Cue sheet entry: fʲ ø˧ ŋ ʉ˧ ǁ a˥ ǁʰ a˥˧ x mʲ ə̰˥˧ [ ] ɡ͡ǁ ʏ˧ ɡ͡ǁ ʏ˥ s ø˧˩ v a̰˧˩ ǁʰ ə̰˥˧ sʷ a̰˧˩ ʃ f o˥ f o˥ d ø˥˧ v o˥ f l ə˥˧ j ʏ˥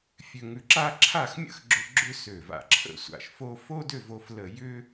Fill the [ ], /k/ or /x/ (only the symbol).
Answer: x